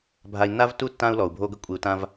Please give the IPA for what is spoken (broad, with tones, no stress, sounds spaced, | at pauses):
bʱ a˨ i̯ nː a˦ v tː u˦ tː ã˦ u̯ l ɔ˨ u̯ bʱ o˦ ɡ ə˦ kʷʼ i˨ u̯ t ã˦ v